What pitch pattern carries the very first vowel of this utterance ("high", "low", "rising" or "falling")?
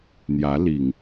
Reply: rising